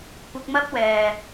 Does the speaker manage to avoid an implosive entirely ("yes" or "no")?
yes